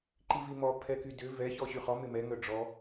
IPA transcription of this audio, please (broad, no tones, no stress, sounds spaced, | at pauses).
ǃ i v i m ɔ pʰ ɛ k y d ʏ v ɛ ç ɔ ɕ y χ ɔ m ɪ m ɛ ŋ œ ɖ͡ʐ ɔ